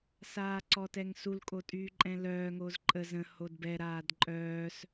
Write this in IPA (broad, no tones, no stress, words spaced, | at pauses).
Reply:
saːǀɔtɛŋsul kʼotʼyːǃʼɛ̃lœː ŋozǃʼə zə̃ hodbɛ ɾaːdǃʼœːs